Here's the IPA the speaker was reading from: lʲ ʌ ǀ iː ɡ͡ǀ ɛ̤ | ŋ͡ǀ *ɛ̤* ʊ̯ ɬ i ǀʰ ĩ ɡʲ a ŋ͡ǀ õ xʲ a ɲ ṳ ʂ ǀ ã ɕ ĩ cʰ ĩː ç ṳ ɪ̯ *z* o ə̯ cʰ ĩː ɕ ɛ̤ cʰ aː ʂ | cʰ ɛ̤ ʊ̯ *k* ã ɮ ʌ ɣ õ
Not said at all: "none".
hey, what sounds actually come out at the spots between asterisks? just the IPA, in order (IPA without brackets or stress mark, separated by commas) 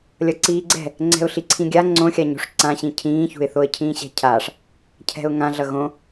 ɛ̤, θ, ŋ